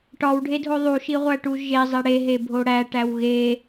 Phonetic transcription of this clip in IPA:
ʈ ɒ w ɖʱ e dʱ o ðˤ u ʃ i ʁʷ æ ʈ u ʒ e zˤ e ɽ e ɦ e bʱ o ɽ æ ʈ æ w ɣ e

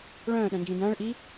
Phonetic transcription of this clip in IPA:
ɭ œ̃ː ɗ œ̃ n d͡ʒ ĩ d ɐ̃ː ɭ ʔ i

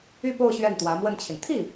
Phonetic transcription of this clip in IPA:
y˥˧ p o˥˧ ʊ̯ ɕ ɥ ɛ˥˩ n t̪ w ä˧˥ m w ə˥˩ n t͡ɕʰ i˩ n t̪ʰ i˥˩

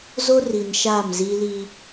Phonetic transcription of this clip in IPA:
z o˦ r i˨ n ʃ aː˦˨ m z iː˦ l i˦

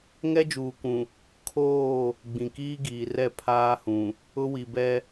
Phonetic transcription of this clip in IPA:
ŋ ɛ˦ d͡ʒ uː˨ kʷ ũ˨ | kʰ oː˦˨ | ɡ͡b ĩ˨ k iː˦ ɡ iː˨ r ɛ˦˨ pʰ aː˦ h ũ˨ | ʊ˦ w i˨ b ɛ˦

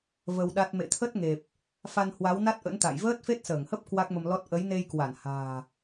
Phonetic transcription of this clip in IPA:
v ə˧ w ɗ a˦˥ t̚ m ḛ˧˨ t̪ʰ ə˦˥ t̚ ŋ e˨˩ p̚ | f a˧ n h w a˨˦ w n a˦˥ t̚ ʔ ə̰˧˥ n t̪ a̰˧˨ j v əː˦˥ t̚ f e˦˥ t̚ s əː˧˩ ŋ h ə˦˥ p̚ k w a˦˥ k̚ m ə˧ m l ɔ˦˥ t̚ ʔ ə˨˦ j n e˧ j k w a˧˩ n h a̤ː˨˩

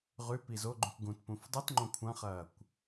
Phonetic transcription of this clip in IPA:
ʁ ʉ p i z o ɡ͡ǃ ũ kʷ ɡ ũ t p ũ f dˤ i t ŋ͡ǃ õ kʷʰ ɐ̃ χ ɐː kʷ

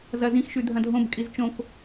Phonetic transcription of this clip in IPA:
z ɐ z ĩ x ʃ ʉ dʱ ɐ̃ dʱ õ b kʼ i z t͡ʃ õ k

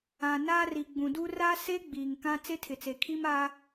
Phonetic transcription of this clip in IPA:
ã˨ n a˦ r i˨ ɡ͡b ũ˨ d u˦ r a˦ s e˦ ɡ͡b iː˨ ŋ k ã˦ t͡s e˦ tʰ ɪ˨ t͡s e˨ kʰ iː˦ m aː˦

